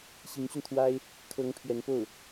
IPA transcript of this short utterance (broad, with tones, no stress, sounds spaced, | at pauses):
ɕ i˧˥ ŋ ɕ y˧ n t̪ʰ w a˥ ɪ̯ | kʰ ɤ˧˥ ŋ pʰ ɥ ɛ˧˥ n p o˥˩ ʊ̯